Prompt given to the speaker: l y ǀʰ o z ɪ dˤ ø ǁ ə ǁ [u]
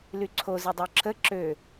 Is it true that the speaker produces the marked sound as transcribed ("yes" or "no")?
no